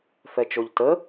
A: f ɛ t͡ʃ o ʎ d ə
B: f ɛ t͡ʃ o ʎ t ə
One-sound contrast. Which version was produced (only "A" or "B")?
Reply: B